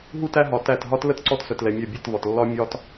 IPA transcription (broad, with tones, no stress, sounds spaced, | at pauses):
ɦ u˦ t æ˦ ɦ ɒ˧ t æ˦˨ t ɦ ɒ˦ t l ə˦ t ǀ ɔ˦ t s œ˧ t l ɛ˧ mʲ œ˦˨ bʲ ɛ˦˨ t v ɒ˨ t lː ɒ˦ mʲ ɒ˦ t